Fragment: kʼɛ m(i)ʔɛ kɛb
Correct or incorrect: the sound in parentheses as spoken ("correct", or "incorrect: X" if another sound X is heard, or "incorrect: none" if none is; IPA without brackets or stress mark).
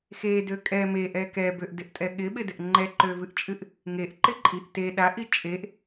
incorrect: e